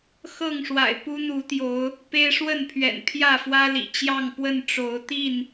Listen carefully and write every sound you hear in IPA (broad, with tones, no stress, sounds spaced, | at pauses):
x ɤ˥˨ ŋ ʂ w a̰˨˩ ɪ̯ p u˦ n̪ u˨˦ t̪ j o˨˦ ʊ̯ | p e˦ ɪ̯ ʂ w ə˥˨ n pʰ ɥ ɛ̰˨˩ n pʰ j ä˥˨ f w ä˦ l ḭ˨˩ t͡ɕ j ɑ˥˨ ŋ p w ə˥˨ n ʈ͡ʂ o˨˦ ʊ̯ t̪ i˥˨ n